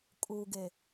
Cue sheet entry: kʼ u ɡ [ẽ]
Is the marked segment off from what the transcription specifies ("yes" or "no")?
yes